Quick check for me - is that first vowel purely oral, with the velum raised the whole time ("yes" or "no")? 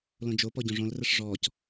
no